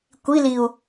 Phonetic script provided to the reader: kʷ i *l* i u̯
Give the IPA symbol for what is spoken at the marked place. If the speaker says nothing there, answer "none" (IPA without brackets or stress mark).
l